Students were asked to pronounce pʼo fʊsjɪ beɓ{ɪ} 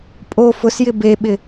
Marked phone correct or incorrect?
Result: correct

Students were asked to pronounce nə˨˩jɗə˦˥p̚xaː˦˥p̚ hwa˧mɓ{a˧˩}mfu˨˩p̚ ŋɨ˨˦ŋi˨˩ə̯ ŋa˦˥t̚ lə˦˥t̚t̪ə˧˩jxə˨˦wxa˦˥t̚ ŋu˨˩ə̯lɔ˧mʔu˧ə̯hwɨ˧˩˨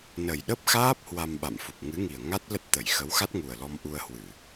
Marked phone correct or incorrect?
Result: incorrect: a̰˧˨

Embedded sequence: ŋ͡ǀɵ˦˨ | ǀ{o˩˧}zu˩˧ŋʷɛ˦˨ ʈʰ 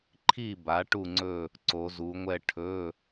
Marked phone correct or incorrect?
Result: correct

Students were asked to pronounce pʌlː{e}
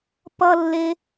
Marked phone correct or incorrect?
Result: correct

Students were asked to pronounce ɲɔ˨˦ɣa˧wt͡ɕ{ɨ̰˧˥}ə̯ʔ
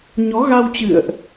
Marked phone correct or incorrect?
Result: incorrect: ɨ̰˧˨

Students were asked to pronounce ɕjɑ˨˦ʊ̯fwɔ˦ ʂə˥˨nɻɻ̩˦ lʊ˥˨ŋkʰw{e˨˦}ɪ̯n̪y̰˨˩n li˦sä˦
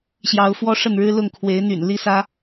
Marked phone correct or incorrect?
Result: correct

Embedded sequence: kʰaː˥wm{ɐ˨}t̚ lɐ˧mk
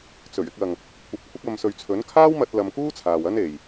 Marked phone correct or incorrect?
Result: incorrect: ɐ˧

